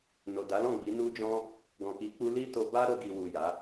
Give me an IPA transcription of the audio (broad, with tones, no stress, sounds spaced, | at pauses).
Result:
n o˨ d a˨˦ l ɔ̃˦˨ ɡ͡b i˨˦ n u˦ d͡ʒ ɔ̃˦ | ɡ ɔ̃˨ k i˨˦ k͡p u˧ l i˦ t o˧ b a˦ ɾ o˧ ɡ i˨ w u˨ j a˨˦